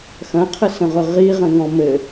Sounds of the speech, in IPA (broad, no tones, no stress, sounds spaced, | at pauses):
x ɐ̃ qʰ ə s ə̃ ʁ ʊ ʁ i ʁ ə̃ ŋ ɔ̃ m ɘ